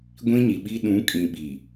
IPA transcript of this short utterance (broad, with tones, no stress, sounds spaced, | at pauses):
ɡʷ ĩ˦ ɲ i˨ ɓ i˦ ɗ ũ˨˦ kʼ ĩ˨ ɓ i˨